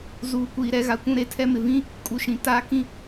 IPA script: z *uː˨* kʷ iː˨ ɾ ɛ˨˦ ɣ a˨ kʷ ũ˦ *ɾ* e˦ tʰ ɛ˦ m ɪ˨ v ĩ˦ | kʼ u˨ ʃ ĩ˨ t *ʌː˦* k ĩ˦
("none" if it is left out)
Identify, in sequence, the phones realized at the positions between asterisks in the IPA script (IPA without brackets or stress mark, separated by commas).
uː˨, ɾ, aː˦